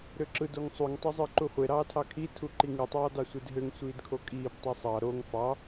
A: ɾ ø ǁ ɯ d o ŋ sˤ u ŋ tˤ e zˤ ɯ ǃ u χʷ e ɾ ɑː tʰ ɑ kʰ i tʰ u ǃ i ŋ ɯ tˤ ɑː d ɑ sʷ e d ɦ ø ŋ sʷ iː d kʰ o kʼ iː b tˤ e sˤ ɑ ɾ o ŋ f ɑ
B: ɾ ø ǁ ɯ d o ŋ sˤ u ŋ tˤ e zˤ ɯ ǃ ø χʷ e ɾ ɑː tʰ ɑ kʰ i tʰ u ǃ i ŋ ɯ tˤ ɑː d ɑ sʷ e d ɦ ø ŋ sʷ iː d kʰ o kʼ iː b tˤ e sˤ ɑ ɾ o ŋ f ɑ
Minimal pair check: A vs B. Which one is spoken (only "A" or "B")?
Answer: A